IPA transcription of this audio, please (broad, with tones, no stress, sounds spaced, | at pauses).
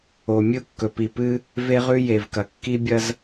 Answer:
o˨ mʲ ɨ˦ ʊ̯ kː ɵ˨ p i˨ p ɨ˦ | v e˦ ʁ ʉ˦ j e˨ v k ɐ˨ kː i˦ bʲ ɐ˦ z